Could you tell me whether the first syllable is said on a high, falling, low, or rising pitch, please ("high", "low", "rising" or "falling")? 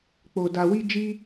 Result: low